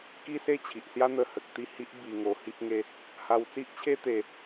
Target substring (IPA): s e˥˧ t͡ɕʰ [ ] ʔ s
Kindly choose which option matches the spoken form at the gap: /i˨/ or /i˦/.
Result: i˨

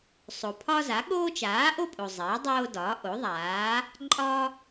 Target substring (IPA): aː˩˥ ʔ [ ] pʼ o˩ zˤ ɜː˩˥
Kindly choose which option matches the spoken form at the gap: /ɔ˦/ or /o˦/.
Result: o˦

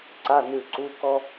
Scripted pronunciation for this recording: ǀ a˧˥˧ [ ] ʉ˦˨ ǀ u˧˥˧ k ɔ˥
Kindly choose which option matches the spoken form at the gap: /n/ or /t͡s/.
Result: n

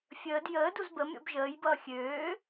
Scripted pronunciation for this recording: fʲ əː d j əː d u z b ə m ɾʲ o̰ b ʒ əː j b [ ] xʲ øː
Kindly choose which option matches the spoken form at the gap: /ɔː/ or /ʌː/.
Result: ʌː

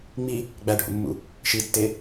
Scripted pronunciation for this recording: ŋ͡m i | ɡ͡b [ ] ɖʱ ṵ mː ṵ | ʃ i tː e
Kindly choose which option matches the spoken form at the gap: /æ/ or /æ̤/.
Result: æ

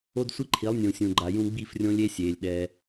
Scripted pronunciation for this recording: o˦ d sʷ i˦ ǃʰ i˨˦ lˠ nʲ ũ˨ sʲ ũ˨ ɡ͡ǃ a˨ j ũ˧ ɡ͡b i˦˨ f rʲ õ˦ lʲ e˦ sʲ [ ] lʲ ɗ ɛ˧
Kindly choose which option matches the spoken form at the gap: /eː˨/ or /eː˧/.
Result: eː˨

